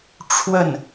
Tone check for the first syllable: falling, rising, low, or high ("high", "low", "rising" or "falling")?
falling